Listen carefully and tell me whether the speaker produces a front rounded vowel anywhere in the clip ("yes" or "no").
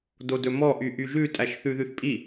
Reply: yes